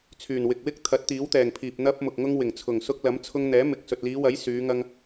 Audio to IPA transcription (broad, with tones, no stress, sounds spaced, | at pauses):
t͡sʰ yː˨˩ n w ɪ˨ k̚ w ɪ˥ k̚ t̪ʰ ɐ˨˥ t̚ t̪ iː˨˥ w t̪ ɛː˨˩ ŋ pʰ iː˨ p̚ n̪ ɐ˧ p̚ m ʊ˨ k̚ ŋ ʊ˧ ŋ w ɪ˨˩ ŋ t͡sʰ ʊ˨˩ ŋ s ʊ˧ k̚ l ɐ˨˥ m t͡sʰ ʊ˧ ŋ n̪ ɛː˨˥ m ɪ˨ k̚ s ɵ˨ t̚ l iː˨˧ w ɐ˨˥ j s yː˨˧ ŋ ɐ˧ ŋ